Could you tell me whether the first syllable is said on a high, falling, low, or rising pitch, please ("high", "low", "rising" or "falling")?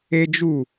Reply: high